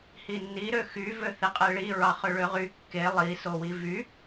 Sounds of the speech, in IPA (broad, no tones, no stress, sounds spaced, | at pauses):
h i nː i ɾ ø x y v ø θ e qʼ e ɭ i ɹ ɑ χ ø ɭ ø ʁ y kː e lˠ i s o w i v y